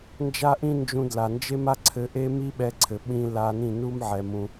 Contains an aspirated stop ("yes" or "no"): yes